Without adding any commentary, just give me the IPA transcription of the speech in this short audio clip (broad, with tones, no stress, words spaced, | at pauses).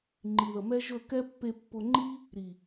ŋ͡ǃi˨ðə˨mɛ˦ʒɵ˦˨ kɛ˦ pːe˧pːʊ˧ŋ͡ǃi˦ | ɾi˨